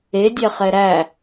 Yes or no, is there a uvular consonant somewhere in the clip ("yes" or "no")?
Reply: yes